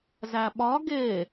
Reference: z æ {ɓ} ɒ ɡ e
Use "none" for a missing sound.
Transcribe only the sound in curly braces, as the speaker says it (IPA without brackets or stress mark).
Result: ɓ